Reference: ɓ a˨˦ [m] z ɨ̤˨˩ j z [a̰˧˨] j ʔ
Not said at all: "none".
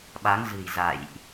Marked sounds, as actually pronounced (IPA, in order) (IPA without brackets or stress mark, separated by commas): ŋ, a̰˧˨